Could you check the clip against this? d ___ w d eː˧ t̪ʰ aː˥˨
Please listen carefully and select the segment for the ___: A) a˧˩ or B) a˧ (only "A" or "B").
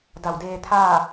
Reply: A